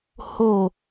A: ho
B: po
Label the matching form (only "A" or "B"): A